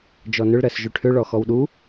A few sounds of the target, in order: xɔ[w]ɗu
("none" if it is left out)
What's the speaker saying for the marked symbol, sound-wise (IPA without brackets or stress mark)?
w